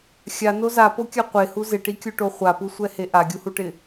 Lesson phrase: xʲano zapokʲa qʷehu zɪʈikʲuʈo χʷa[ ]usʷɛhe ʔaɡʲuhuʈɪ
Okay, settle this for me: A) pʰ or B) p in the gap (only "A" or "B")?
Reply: B